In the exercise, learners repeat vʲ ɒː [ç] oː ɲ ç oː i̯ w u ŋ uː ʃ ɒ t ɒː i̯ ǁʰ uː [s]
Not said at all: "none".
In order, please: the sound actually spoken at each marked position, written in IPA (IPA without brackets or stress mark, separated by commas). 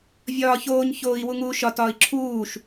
ç, ʃ